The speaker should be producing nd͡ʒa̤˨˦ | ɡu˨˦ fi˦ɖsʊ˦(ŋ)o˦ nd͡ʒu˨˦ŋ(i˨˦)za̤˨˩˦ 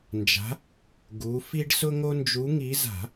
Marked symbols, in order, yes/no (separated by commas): yes, yes